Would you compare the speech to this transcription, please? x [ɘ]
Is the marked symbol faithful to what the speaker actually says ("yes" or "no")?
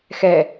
no